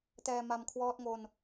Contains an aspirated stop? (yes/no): yes